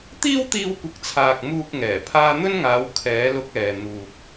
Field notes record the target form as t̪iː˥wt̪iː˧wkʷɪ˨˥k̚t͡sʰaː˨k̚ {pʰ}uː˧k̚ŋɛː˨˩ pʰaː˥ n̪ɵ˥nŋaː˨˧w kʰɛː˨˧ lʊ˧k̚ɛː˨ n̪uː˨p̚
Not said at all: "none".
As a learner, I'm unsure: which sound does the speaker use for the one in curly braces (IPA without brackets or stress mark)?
m